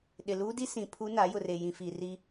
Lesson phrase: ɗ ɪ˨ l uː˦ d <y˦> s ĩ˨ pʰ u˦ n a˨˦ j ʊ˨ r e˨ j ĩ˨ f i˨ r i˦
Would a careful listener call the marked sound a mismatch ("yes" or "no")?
yes